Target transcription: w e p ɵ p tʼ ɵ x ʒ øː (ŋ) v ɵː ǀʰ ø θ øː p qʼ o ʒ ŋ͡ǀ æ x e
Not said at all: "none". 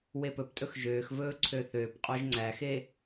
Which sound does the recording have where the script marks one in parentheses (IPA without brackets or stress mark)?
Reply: x